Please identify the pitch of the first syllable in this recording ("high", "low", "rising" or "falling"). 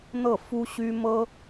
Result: falling